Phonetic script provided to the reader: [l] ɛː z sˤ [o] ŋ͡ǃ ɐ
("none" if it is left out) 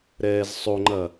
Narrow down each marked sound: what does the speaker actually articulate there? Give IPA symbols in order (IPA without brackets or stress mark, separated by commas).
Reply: ɾ, o